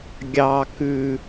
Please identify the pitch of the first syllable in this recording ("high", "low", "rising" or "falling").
low